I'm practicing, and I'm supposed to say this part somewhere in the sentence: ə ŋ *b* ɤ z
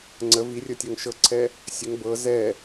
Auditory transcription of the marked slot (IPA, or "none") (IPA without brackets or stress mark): b